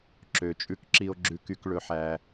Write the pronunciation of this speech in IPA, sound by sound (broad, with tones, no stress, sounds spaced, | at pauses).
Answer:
ǁ ø˨ t͡ʃʼ ʉ˧ k ǁ i˧ o̯ ɡ͡ǁ ʉ˧ k y˧ k ɭ ɵ˧ ħ æ˧